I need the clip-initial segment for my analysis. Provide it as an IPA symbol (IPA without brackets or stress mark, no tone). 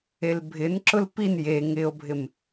e